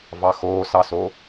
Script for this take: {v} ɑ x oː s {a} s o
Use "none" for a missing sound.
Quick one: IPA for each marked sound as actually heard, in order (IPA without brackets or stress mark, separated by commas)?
v, ɑ